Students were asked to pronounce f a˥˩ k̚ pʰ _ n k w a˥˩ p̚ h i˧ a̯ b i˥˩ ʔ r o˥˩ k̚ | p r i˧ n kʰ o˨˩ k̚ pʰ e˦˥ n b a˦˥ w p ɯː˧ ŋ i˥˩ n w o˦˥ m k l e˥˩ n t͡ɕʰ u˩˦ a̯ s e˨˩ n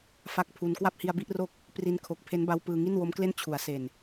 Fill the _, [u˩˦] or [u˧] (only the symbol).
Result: u˧